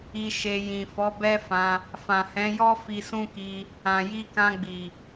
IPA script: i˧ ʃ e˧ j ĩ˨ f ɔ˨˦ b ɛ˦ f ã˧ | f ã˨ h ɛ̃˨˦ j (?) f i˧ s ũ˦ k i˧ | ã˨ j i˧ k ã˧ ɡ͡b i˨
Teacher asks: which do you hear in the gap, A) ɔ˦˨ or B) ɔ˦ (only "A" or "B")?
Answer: B